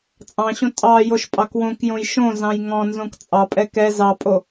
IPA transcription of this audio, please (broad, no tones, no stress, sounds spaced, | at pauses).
t͡sʼ ɑ̃ ɕ õ tʼ ɑ j o ʃ pʼ ɑ k w õ k j õ j ʃ õ z ɑ̃ j ŋ ɔ̃ n z õ k t͡sʼ ɑ pʼ ɛ k ɛ z ɑ pʼ o